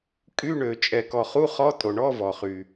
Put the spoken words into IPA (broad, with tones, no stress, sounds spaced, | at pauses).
kʼ y˧˥˧ ɳ ø˩ t͡ʃʼ ɛ˩ k ɔ˩ χ u˧˥˧ χ ɔ˧˥˧ tʼ o˩ ɳ ɔ˧˥˧ v ɔ˩ χ y˩